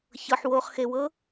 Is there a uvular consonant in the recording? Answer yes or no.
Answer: yes